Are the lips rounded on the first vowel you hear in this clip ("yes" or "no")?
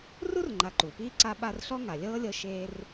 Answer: yes